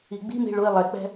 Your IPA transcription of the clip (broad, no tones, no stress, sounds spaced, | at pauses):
i ɡ͡b i̤ m i̤ ɭ ʊ i̯ lˠ ɛ k͡p ɛ̤